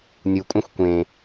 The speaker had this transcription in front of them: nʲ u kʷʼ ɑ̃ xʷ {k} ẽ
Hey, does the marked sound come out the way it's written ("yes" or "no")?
no